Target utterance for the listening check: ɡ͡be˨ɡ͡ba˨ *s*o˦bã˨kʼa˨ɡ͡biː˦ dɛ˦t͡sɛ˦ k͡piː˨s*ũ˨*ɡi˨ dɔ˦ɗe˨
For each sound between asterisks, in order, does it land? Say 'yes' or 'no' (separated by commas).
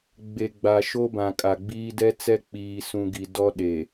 no, yes